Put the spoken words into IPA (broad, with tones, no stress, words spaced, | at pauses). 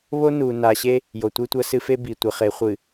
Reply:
βo˦nu˨ na˨ɕe˦ | jo˨tʷɨ˦tʷɐ˦sɨ˦ fe˦ bi˨tʷɘ˨χe˨˦ χʷɨ˨